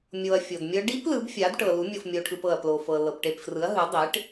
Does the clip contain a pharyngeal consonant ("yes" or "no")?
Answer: no